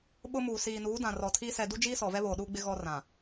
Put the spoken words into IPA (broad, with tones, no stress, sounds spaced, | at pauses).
ɓ ʊ˦ m uː˨ s iː˨ n uː˨˦ d ã˨ r ɔ˨ tʰ iː˦ s ɛ˨ d u˦ d͡ʒ iː˦ s ɔ˨ v ɛ˦ β oː˨ ɗ uː˦ ɡ͡b ɪ˦ ɣ ɔ˦ r ã˨